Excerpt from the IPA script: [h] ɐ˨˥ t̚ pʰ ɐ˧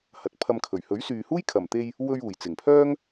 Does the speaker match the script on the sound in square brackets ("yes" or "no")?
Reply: yes